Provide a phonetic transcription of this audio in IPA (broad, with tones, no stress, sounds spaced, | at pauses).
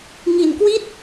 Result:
ŋ i˨˩ n k w i˥˩ t̚